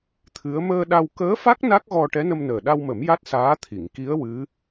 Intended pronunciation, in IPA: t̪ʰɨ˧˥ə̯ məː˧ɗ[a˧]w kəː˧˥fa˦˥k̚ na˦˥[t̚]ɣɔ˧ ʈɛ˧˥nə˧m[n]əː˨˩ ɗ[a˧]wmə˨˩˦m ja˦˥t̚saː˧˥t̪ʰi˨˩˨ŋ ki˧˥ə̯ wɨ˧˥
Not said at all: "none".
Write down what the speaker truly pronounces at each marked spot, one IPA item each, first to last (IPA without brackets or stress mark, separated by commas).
a˧, k̚, n, a˧